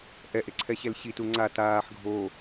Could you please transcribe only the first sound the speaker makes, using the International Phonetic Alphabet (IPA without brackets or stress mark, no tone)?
ʔ